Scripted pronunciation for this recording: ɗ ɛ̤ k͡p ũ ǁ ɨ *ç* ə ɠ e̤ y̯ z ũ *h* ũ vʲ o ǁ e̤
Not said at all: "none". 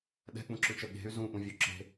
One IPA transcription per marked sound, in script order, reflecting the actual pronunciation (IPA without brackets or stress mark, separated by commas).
t͡ʃ, ʔ